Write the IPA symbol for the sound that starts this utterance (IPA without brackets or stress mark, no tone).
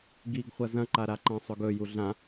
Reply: ɡ